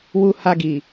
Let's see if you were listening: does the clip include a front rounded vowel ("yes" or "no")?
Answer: no